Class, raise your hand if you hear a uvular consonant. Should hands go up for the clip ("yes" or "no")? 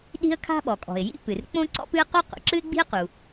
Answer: yes